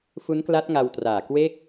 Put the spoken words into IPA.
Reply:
f u˦˥ n k l a˦˥ t̚ ŋ a˧ w t r aː˨˩ k w e˦˥ k̚

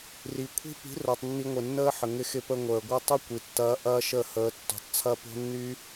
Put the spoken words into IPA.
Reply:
r i˨ kʷʰ i̤˦ p i̤˨˦ r o˨ tˤ nː i˧ ŋʷ ɪ˨ nː əː˦ ħ ə˨ ŋ ɪ˧ x ɪ˧ p ə˧ ŋʷ əː˨ ɡʷ ɐ˦ tˤ y˦ kʷ i˨ tː ɐː˧ ʔ ɐː˦ ʃ ə˦˨ h əː˧ tː ṳ˨ tˤ t͡sʰ ɐ˦ p o̤˦ nː y˦

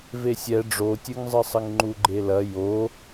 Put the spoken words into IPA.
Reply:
v e sʲ ɛ ɖ͡ʐ o tʲ ɨ ŋ zˤ ɨ sˤ ɘ ŋ ŋ͡ǃ u ɡ͡ǃ e l ɐ j o

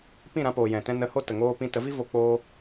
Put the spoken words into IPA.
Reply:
p ĩ˦˨ ɾ ã˧ p oː˨ j ɛ̃˨ t ɛ̃˧ n ə˨˦ h o˦ t ə˨ ŋ oː˦ p ĩ˦ t ə˨˦ v i˦ v o˧ k͡p oː˦

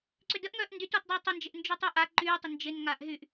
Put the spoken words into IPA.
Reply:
ǀ ʏ d ə ʔ ŋ œː ʔ n d y t ɔ t dˤ ɪː tˤ ʊ n d͡ʒ ɪ ʔ n d͡ʒ y tˤ y ʔ a ǃ yː tˤ ɪ n d͡ʒ ɪ n ŋ aː ʔ ɦ y ʔ

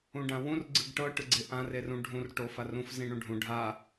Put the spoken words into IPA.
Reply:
ũ ɖ ã w ũ r ɡ͡ǀ ɯ ɡ ʈ ɤ ʈ ɯ ɡ͡ǀ e ʔ ã r e r ũ ɖʱ ũ r ʈ o f a r ũ f z ĩ ɳ ũ ɖʱ ũ ɖʱ a

